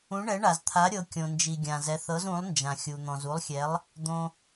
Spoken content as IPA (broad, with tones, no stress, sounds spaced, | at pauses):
ũ˨˥ ɳ ɛ˨˥ ɳ a˩ z t̪ʰ a˨˥ ɾʲ ɤ˨˥ kʲ õ˩ n d͡ʒ i˩ ɡʲ ã˩ z ɛ˨˥ θ ɤ˨˥ z ũ˨˥ lˠ n d͡ʒ ã˩ xʲ u˩ n̪ ɔ̃˩ z u˨˥ lˠ xʲ ɛ˨˥ lˠ | d̪ õ˩